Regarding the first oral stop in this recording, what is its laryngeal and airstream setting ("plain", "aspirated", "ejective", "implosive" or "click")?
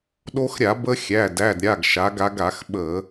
implosive